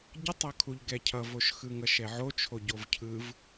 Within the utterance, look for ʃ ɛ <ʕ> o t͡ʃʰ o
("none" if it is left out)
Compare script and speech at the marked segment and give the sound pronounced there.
ʕ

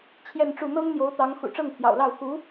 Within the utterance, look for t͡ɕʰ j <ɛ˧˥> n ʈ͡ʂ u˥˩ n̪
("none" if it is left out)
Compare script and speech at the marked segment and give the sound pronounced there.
ɛ˥˧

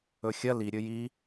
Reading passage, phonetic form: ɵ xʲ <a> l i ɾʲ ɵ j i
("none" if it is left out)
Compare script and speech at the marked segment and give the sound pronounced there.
ɐ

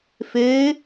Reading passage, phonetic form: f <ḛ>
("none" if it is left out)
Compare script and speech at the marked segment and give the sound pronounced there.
e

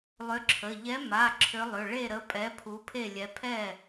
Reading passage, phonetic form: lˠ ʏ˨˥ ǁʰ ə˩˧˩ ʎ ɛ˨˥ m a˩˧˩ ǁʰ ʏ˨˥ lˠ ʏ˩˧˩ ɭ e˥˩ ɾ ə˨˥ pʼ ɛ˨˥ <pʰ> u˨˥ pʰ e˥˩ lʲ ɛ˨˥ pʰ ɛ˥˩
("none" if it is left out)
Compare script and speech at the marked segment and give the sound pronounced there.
pʰ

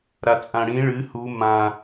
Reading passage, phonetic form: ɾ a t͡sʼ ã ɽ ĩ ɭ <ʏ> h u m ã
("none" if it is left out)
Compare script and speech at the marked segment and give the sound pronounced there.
ɨ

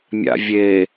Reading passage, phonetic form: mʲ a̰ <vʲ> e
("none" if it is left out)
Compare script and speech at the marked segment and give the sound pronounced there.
vʲ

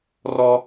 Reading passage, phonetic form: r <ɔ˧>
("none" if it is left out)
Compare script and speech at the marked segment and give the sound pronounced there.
ɔ˧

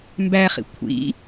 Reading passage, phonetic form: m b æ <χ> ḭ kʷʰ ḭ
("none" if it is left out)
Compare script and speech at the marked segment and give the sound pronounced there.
χ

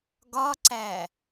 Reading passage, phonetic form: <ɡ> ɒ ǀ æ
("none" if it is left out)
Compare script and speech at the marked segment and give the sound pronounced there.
ɡ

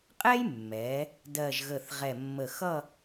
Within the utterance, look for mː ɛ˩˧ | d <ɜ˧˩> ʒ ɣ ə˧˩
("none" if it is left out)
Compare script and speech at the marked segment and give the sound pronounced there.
ɜ˧˩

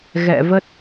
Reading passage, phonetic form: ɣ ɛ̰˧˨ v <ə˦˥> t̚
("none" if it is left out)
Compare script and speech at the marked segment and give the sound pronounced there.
ə˦˥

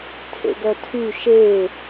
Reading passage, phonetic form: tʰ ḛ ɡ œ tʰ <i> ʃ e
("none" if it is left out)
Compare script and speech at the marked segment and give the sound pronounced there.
y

